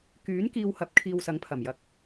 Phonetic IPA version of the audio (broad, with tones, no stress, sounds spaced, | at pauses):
k yː˨˥ n k iː˧ w h ɐ˨˥ p̚ kʰ iː˧ w s ɐ˨˥ ŋ pʰ ɐ˨˩ m j ɐ˨˥ k̚